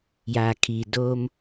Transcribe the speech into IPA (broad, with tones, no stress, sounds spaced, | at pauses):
j aː˩ kʰ iː˩ d oː˧ m